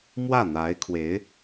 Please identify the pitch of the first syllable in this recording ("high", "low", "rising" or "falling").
falling